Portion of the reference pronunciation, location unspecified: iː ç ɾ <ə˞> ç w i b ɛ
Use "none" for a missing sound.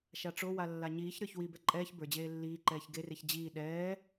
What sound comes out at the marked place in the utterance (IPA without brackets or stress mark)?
ə˞